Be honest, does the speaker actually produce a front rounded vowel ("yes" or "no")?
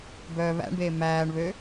yes